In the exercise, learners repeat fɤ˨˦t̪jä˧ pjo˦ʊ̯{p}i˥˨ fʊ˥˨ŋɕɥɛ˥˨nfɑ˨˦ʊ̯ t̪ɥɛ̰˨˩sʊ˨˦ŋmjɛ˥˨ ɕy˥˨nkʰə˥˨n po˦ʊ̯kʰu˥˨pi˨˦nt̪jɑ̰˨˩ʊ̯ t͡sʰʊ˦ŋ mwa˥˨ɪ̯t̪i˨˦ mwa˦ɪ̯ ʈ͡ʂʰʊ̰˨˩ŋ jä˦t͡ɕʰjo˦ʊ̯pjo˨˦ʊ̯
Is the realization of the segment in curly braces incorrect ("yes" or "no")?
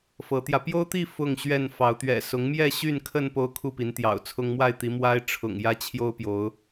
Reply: yes